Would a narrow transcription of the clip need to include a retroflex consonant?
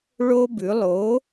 yes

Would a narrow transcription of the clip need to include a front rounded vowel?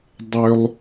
yes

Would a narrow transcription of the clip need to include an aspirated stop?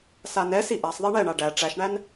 no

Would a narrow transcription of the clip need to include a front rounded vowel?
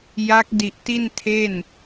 no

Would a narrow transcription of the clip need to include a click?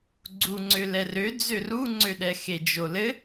yes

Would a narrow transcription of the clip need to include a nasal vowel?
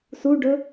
no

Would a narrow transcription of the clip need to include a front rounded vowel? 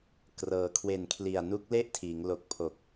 no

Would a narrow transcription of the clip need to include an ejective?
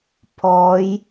no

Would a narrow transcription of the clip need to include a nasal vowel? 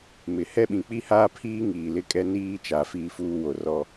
yes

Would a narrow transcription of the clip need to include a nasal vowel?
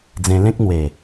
yes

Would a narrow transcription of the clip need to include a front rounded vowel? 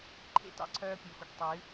yes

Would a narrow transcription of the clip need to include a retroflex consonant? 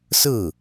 no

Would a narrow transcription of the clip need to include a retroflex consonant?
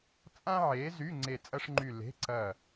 yes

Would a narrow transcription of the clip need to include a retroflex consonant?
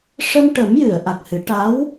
yes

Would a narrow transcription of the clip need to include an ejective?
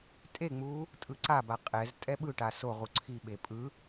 yes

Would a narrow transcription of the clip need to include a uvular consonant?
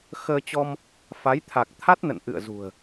no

